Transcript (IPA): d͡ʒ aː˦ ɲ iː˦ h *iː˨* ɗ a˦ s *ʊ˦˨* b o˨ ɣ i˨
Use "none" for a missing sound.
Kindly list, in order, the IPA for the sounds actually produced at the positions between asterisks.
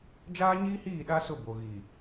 iː˦˨, ʊ˦˨

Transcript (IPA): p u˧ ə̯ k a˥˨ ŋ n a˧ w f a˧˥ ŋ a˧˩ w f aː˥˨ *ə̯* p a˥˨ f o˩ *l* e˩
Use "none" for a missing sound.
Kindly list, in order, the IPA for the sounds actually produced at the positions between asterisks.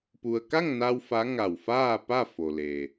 none, l

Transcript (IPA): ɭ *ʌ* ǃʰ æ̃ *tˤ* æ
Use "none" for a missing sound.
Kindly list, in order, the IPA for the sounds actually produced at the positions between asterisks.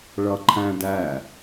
ʌ, d

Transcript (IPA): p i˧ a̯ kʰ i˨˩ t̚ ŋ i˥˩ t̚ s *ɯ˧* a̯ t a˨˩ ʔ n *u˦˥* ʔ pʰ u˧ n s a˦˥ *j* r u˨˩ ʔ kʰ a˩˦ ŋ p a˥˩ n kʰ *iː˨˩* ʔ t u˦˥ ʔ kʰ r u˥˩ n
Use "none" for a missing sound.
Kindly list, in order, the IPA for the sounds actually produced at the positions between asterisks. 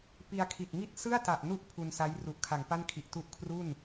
ɯ˥˩, u˦˥, j, i˨˩

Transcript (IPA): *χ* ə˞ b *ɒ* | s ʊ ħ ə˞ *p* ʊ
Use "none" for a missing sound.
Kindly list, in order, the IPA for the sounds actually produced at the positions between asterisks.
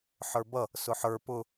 ħ, ʌ, p

